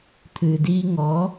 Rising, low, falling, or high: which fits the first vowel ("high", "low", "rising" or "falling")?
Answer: low